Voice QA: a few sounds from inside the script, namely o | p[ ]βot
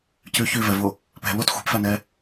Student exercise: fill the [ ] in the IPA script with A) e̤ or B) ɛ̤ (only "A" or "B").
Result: B